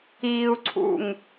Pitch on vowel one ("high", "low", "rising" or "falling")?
low